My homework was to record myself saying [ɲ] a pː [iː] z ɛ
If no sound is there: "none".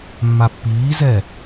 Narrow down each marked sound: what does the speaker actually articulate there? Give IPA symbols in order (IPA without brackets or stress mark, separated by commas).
mː, iː